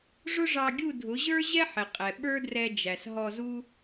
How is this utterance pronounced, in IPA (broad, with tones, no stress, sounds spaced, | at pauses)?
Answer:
ʐ ʊ˦ ʐ ɑ˧ ɡʲ u˦˨ dʱ ʊ˨˦ ʑ ə˞˦ ʑ ɛ˦ ħ ɪ˨ qʼ ɛ˨ ɓ ə˞˦ d r ɛ˧ d͡ʒ æ˨ s ɦ ɔ˧ z u˦